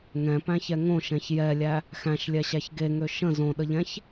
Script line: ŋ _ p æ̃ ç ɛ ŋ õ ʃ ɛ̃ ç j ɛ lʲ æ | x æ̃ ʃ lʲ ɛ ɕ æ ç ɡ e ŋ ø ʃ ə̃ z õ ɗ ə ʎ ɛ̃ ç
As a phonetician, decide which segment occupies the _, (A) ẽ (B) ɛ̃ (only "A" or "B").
B